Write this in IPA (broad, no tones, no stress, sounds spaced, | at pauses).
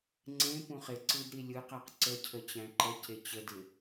ŋ͡ǀ ẽ p ũ χ ɪ ǀ ɯ d ɾ i lʲ ɯ q æ q ǀ ə cʰ ə t͡ɕ æ̃ ǃ ə c e t͡ɕ ə d ɪ